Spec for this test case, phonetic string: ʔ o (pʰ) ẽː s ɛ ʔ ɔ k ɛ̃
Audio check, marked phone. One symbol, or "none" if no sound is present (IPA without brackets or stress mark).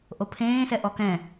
pʰ